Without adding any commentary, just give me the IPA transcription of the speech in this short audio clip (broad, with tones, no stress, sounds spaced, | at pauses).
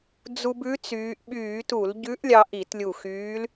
d͡z u˧ b ʉ˧˥ t͡s yː˩˧ ʔ ɓ yː˧˩˧ t u˧˩˧ l ɟ ʉ˧˥ ʔ lʲ ɑ˧ ʔ i˧˩˧ t lʲ u˧˩ x yː˧˥ l